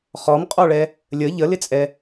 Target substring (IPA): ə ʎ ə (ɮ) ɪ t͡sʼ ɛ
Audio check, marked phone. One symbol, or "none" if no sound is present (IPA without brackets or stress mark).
l